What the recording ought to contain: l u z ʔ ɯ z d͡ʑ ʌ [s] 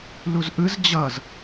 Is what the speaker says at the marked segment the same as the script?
no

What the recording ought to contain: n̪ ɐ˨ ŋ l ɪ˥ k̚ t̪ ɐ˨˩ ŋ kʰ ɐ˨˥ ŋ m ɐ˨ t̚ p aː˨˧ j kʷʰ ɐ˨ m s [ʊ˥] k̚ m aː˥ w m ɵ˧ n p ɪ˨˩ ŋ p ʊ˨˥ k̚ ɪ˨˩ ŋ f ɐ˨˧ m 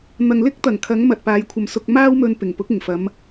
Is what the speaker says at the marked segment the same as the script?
no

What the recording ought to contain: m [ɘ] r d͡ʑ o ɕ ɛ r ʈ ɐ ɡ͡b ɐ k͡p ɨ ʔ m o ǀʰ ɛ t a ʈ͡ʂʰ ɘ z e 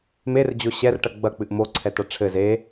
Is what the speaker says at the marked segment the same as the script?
no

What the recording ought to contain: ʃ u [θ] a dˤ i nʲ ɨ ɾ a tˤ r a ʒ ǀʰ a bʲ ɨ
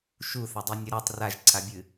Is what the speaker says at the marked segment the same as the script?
yes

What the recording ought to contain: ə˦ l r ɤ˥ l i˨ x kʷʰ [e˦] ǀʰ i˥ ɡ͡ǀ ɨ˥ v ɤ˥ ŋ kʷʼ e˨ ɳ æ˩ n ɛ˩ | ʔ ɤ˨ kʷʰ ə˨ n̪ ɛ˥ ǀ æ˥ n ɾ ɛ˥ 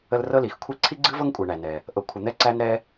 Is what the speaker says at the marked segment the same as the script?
no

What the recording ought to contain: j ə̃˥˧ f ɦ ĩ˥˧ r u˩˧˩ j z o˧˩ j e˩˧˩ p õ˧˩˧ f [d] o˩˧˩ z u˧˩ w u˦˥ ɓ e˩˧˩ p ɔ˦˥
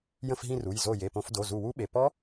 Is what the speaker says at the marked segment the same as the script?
yes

